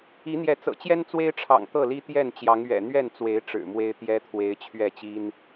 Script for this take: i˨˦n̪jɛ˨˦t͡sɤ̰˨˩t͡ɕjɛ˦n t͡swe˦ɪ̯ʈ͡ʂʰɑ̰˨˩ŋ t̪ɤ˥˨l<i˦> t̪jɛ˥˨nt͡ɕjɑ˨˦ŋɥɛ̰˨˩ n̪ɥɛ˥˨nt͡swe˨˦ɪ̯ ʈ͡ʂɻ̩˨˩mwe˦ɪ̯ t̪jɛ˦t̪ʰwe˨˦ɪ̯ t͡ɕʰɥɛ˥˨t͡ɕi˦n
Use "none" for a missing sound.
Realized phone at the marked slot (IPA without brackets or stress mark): i˦